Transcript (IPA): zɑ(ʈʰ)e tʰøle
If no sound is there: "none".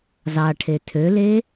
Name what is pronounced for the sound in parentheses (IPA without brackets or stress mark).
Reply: ʈʰ